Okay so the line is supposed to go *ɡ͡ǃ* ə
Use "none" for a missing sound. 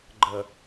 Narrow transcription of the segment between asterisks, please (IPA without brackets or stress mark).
ɡ͡ǃ